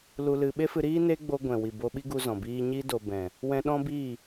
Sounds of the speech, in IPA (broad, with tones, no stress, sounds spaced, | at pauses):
l u˧ l ɨ˧ ɓ e˦ f ɨ˧ ɾ iː˦ n e˦ ɡ͡b o˧ ɡʷ ɛ̃˨ w i˨ b o˧ ɓ i˦ ɡ u˧ z ɔ̃˨ b iː˦ ɲ i˦ d o˧ b ɛ̃˨ | w ɛ̃˧ ɗ ɔ̃˦ b iː˦˨